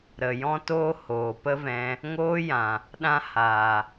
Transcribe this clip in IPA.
ɾ ə˨ j ɔ̃˦ t oː˦ h oː˨ p ə˦ v ɛ̃˧ | ŋ oː˦ j ã˨ | ɗ ã˦ h aː˨

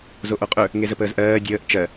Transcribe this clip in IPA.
z o ʔ o qʼ ɵ | ŋ e z ə p əː z ʔ ɜː dʲ əː ʔ t͡ʃ ɜ

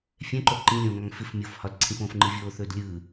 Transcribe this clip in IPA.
fʲ ɛ̃ ǃ o ǃ ĩ lʲ õː ŋ ɒ ŋ f ɪ f mʲ o f h ɒ d ǀʰ ĩ f õː f ŋ͡ǃ ɯ vʲ oː θ ɵː d lʲ ɯː

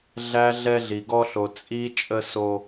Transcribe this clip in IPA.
ɮ æ˧ ɮ ɛ˦ ɮ i˧ ɡ ɔ˦ ɬ o˧ t͡sʼ i˧ t͡ʃʼ ə˦ s o˦

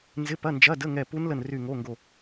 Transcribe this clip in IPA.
n z ɪ˧˥˧ p ɐ˧˥˧ n d͡ʒ ɐ˧˥˧ d ə˧˥˧ ŋ ɛ˦˨ p u˦˥ n l ə˦˨ n r y˦˨ ŋ o˧˥˧ ŋ ɡ o˦˨

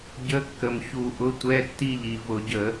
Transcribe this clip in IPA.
ɟ ə˧˥˧ kː ə˨˩ m ç u˧˩˧ ʔ ʊ˧˥˧ tʷ ɛ˧˥˧ tː i˥˩ ʎ i˨˩ v ʊ˧˩˧ ɟ ə˧˩˧

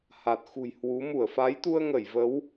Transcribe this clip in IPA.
h a˨˩ t̚ x ṳ˨˩ j h w u˨˦ m u˧˩ ə̯ f a˨˦ j t̪ u˧ ə̯ ŋ ə˧˩ j v ə˨˦ w

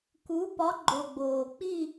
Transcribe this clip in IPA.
k u˧˥ p ɒ˧˥ ɡ͡ǃ o˨ ɡ͡b oː˨ k͡p i˥˧

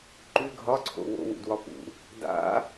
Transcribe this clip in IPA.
ǃ ʉ ɡʱ ɒ ǀʰ o̰ w o̰ w ṵ d w ɒ p ṵ | d a̰

